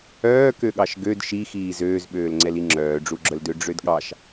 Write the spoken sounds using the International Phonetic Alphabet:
œː k ø ɠ ɑ ʃ ɡ ø d ʃ i x iː z øː z ɓ øː l ŋ͡ǀ ɛ l i ŋ͡ǁ œː ɖ͡ʐ u ɡ͡ǁ œ l d ø ɖ͡ʐ ø d ɠ ɑ ʃ

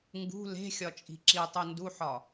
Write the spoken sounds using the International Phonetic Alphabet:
ŋ ɡ ṳ l e̤ xʲ ɒ t͡ʃʼ i̤ ǁ i tˤ u n d u ħ ɒ

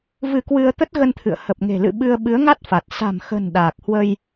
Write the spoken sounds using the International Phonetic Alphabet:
v ɨ˧ k w ɨ˧ ə̯ t̪ ə˦˥ t̚ ɣ ə˧ n t̪ʰ ɨ̰˧˨ ə̯ h ə˨˩ p̚ ŋ e̤˨˩ l ɨ̰˧˨ ɓ ɨ˧ ə̯ ɓ ɨ˨˦ ə̯ ŋ a˦˥ t̚ f a˨˩ t̚ s a̤˨˩ m x ə̤˨˩ n ɗ aː˨˩ k̚ h w ə˧ j

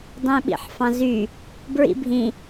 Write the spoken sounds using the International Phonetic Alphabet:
dˤ ẽ ɓ ḭ ħ f ɑ̃ z y | b ɹ ḭ bʱ ĩ

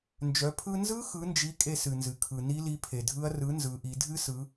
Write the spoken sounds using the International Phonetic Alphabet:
n d͡ʒ œ˩˧ pʰ ɯ˧ n z ɯ˦˥ x ɯ˨˥ n d͡ʒ i˨˥ kʼ e˧ s ɨ˩ n z ɨ˩ kʰ ɯ˩ n i˦˥ l i˨˥ pʰ e˩ dʱ ɯ˦˥ ɐ̯ r ɯ˨˥ n z ɯ˩˧ ʔ i˩˧ dʱ ɨ˦˥ s ɯ˩˧

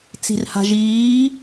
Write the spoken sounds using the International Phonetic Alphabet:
t͡s i̤ r h a̤ ʒ iː

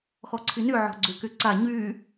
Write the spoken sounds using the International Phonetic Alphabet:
x ɔ ǀʰ i n y ʕ ɔ̤ ɡ͡ǀ y k y ǀ a ɲ y

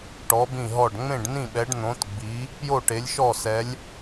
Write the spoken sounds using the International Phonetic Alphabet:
ʈ ɔ˧˥ b ĩ˥˧ ɦ ɔ˥˧ ɖ ŋ͡m ẽ˥˧ ɖ n ĩ˥˧ ɓ ɛ˧˥ ɖ n̪ õ˧˥ t ɡ͡b i˧˥ | p j o˥˧ ʈ e˧˥ lʲ ʃ ɔ˥˧ s ɛ˧˥ lʲ

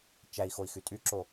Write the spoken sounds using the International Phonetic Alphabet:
t͡ʃ æ i̯ x o i̯ x y tʼ y ǁ o

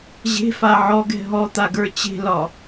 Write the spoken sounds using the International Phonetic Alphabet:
ʑ e̤ f a ʕ ɔ ɡ ɛ̤ ɦ ɔ t̪ a ɡ ə˞ t͡ɕ e̤ l ɒ

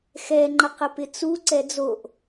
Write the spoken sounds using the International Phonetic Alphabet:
x ɛ ŋ͡ǃ ɐ q ə p ɪ t͡s u ǀ ɛ d͡z o ʔ

